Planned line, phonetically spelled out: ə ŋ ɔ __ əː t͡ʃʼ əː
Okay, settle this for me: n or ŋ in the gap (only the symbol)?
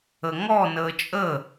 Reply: n